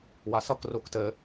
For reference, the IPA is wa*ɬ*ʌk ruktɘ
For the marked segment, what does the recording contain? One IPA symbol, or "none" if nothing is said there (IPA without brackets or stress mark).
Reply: s